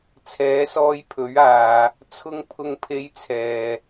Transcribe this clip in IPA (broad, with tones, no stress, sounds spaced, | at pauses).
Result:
t͡sʰ ɛː˨˥ s ɔː˧ j pʰ ɵ˨˥ ɥ aː˧ | t͡sʰ ʊ˧ ŋ pʰ ʊ˧ ŋ pʰ e˧ j t͡sʰ ɛː˨